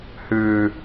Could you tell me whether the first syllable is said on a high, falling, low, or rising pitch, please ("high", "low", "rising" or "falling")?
high